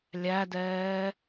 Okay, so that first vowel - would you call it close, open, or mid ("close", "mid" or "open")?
open